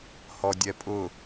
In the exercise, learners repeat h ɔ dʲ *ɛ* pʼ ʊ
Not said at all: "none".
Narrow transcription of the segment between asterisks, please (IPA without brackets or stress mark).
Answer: ɛ